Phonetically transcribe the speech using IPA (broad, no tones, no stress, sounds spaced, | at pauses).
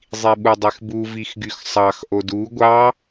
zˤ i ɓ u dˤ e x b u v i x ɡ y x sˤ ɑ x ʔ o d u ɡʷ ɑ